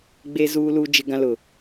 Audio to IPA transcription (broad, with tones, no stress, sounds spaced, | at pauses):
ɡ͡b e˦ z uː˦ l u˦ d͡ʒ ɪ˦ ɡ ã˦ l ʊ˨